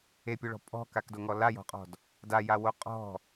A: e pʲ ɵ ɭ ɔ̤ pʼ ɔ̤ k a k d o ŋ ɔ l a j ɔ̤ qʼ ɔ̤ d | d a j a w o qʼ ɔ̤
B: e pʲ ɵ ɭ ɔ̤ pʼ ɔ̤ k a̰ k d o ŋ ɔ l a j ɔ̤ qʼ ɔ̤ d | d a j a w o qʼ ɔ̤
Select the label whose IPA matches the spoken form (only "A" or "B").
A